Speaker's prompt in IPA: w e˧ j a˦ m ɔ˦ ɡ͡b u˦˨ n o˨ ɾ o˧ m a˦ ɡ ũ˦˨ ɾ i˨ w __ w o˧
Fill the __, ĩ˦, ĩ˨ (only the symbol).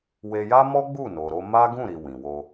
ĩ˨